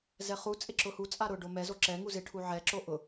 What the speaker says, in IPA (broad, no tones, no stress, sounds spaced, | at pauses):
z ɛ χ u t͡sʼ ɪ ǁ ʊ h u t͡sʼ a ɾ ʊ ɖ o m ɛ z o ǁ ɛ ŋ u z ɪ ʈʰ u ʕ ɛ ǁ o ʔ ʊ